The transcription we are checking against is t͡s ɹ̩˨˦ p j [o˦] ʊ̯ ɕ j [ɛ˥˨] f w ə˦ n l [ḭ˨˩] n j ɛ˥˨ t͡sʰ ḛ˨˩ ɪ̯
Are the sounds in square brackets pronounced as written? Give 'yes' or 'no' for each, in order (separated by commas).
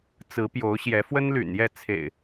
no, no, no